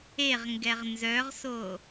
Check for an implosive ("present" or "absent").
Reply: absent